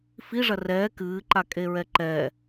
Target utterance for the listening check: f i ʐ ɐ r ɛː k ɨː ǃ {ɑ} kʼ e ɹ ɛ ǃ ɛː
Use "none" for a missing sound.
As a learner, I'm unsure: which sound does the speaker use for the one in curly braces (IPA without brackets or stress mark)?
a